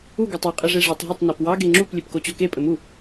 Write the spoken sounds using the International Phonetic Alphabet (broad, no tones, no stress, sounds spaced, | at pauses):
u ɡ o tˤ e qʼ ɘ ʐ e ʐ ɘ tˤ ɦ ɘ tˤ n ɑ p w ɑ ɡ e ŋ͡ǁ u p lʲ e p k o t͡ɕ o k e pʼ ɘ m u